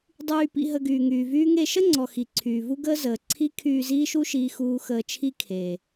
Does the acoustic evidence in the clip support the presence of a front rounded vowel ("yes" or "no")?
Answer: yes